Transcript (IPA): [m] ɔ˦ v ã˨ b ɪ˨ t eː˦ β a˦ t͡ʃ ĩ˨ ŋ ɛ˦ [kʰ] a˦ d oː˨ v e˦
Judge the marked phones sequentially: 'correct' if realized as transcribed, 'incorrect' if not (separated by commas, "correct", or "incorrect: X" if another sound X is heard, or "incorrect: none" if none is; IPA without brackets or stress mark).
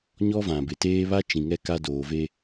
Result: incorrect: ɲ, incorrect: k